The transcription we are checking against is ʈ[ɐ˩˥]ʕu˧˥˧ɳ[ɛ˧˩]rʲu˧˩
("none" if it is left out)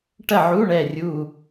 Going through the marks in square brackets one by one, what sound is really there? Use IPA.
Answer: ɐ˥˨, ɛ˧˩

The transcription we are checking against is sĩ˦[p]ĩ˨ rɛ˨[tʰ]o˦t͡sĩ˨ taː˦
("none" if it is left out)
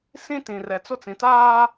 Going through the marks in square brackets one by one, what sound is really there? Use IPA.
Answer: t, t͡s

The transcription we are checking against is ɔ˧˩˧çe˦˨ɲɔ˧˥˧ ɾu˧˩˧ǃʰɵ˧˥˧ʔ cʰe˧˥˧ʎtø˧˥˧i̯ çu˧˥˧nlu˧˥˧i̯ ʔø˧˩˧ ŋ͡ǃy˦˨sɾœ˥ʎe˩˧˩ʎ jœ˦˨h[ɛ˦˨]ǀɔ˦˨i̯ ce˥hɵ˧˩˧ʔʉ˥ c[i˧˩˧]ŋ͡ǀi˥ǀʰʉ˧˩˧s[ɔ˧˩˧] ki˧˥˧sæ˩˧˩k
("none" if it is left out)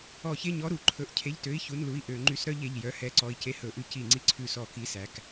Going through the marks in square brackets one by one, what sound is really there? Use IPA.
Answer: ɛ˦˨, i˧˩˧, ɔ˧˩˧

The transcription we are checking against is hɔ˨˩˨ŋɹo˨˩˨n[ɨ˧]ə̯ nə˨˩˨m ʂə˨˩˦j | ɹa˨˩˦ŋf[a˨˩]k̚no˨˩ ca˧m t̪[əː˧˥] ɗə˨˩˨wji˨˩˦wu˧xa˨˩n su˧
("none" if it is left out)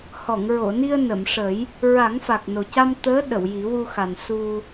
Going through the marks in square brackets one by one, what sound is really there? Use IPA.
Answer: i˧, a˨˩, əː˧˥

